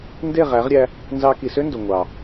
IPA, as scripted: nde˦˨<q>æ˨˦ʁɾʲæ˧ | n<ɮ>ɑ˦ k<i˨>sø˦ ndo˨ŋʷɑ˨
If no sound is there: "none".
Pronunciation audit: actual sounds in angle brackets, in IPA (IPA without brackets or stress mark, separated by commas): ʁ, z, i˨